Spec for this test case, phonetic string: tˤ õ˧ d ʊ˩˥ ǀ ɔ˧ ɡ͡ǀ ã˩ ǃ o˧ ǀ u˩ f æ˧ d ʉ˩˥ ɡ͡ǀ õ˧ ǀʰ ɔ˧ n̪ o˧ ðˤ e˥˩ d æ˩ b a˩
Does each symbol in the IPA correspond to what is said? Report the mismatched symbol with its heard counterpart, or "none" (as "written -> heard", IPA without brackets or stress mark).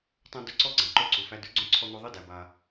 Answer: none